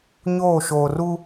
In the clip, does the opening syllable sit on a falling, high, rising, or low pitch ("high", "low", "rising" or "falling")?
falling